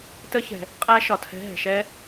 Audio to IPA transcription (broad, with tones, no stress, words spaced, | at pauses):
tə˦˥çɛ̤˩ | qʼæ˦˥ʃɒ˩tʰɛ̤˨˦ ɦɛ̤˩ʃɛ˦˥